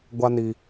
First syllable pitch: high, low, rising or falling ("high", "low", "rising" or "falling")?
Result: high